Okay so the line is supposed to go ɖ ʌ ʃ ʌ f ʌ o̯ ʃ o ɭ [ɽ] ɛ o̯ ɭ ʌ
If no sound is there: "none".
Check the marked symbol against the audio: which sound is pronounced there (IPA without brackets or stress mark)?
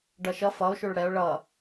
ɽ